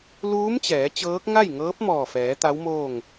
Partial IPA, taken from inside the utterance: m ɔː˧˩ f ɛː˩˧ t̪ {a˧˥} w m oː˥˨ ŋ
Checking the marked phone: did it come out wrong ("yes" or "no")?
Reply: no